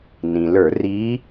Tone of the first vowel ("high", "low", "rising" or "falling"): low